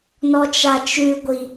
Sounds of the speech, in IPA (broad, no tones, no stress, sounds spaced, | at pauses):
n ɔ t͡ʃ a t͡ʃ ʉ ɡʷ i